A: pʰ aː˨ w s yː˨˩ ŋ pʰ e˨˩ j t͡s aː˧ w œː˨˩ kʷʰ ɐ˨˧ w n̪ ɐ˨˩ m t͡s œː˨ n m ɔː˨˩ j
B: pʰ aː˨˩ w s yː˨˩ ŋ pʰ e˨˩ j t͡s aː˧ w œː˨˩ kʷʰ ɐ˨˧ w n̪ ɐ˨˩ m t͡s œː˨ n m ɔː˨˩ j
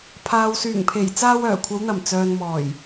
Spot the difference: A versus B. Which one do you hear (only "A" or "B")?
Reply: A